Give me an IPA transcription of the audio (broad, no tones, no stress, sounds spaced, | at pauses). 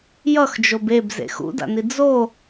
j ʌ x d͡ʒ o b e b z ḛ x ṵ d a̰ n i d͡z o